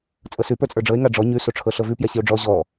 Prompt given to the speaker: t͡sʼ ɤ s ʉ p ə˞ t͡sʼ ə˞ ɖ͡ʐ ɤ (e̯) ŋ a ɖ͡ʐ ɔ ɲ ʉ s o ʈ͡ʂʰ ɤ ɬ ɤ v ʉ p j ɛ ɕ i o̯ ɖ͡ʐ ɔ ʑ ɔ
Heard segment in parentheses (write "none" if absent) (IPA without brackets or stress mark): e̯